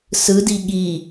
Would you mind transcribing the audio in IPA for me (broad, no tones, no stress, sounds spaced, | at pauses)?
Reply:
s ɯ d i ɠ i